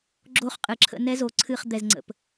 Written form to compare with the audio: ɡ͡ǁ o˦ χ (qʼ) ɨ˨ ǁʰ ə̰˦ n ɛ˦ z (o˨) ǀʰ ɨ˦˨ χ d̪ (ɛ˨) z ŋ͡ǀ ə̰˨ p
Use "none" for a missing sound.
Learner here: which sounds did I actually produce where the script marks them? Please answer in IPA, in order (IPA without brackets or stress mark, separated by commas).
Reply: qʼ, o˨, ɛ˨